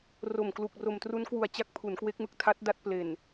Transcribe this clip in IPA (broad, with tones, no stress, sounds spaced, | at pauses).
r o˨˩ m k l u˨˩ k̚ r o˨˩ m t r u˦˥ n k w u˨˩ a̯ t͡ɕ a˥˩ k̚ pʰ u˩˦ n k w e˦˥ k̚ m ɯ˨˩ k̚ tʰ a˦˥ t̚ d a˦˥ t̚ p l e˨˩ n